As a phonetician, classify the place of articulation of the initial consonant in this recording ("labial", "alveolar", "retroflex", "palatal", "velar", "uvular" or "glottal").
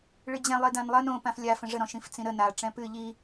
retroflex